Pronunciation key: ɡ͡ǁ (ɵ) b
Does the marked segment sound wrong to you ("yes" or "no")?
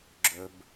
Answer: no